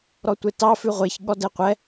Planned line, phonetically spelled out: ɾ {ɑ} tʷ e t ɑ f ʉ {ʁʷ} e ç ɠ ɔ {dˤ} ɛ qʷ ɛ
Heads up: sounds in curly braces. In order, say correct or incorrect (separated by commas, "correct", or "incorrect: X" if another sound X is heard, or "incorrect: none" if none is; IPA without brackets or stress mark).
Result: incorrect: ɔ, correct, incorrect: d